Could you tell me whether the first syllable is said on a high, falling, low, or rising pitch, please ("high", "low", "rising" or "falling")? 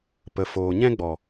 low